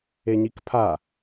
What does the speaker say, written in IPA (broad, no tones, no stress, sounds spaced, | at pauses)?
e ɲ i k pʰ a